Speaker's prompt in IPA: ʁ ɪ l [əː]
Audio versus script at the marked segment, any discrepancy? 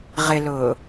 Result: yes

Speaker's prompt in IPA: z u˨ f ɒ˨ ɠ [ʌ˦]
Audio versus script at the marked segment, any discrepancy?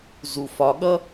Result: no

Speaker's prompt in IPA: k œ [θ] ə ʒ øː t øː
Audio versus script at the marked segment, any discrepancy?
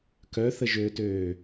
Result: no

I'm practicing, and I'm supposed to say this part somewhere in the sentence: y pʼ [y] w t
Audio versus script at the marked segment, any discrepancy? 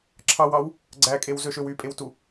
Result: yes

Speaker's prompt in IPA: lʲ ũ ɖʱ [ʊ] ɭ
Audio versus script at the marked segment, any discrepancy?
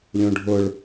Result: no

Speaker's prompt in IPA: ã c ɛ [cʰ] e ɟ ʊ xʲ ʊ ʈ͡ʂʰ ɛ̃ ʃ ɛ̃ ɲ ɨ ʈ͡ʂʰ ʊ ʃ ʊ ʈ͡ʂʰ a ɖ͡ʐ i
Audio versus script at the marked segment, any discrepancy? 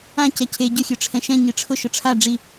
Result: no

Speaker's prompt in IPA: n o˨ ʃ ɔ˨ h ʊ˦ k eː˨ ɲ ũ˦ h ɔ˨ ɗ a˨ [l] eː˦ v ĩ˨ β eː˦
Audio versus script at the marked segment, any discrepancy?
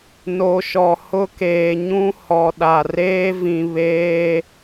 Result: yes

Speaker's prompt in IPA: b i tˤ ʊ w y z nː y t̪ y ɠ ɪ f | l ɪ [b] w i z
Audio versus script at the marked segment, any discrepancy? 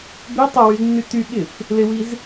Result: yes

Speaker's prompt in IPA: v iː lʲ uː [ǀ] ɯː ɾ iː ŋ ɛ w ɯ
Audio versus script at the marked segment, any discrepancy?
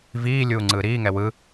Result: yes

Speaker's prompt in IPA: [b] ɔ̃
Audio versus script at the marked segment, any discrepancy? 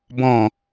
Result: no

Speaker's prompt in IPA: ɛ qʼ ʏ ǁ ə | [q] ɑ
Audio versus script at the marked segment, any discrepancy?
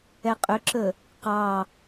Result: no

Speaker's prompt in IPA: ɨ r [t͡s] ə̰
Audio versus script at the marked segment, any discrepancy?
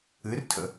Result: yes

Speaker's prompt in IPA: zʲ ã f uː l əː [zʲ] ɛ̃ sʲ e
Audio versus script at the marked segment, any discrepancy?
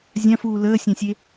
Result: yes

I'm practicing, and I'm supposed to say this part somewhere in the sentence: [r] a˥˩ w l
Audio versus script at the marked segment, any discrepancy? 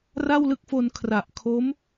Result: no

